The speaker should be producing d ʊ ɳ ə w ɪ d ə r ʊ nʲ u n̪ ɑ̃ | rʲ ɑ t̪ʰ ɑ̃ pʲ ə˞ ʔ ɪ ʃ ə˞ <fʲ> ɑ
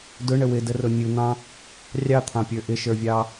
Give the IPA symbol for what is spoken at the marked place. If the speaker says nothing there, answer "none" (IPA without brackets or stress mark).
vʲ